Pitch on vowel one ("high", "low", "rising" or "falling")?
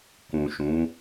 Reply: low